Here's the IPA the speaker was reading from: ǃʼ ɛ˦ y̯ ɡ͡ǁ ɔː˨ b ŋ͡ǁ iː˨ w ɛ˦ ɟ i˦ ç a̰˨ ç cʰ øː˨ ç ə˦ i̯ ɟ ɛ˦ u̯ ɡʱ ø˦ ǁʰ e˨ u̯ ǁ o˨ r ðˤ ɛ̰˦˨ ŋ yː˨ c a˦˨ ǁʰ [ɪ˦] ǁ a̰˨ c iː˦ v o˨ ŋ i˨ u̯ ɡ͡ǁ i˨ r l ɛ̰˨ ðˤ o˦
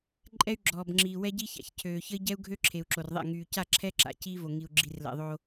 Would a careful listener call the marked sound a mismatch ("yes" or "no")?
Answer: yes